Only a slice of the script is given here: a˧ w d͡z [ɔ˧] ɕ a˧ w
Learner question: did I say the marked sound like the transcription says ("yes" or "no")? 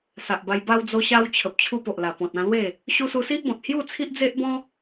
no